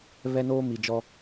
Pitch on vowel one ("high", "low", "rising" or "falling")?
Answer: high